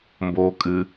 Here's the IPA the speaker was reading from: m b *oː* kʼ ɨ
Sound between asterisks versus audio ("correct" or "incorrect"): correct